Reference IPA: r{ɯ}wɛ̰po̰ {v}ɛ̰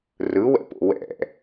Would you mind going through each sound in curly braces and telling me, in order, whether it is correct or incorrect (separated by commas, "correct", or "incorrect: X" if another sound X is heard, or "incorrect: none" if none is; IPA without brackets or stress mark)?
correct, incorrect: w